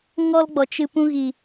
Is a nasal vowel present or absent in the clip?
present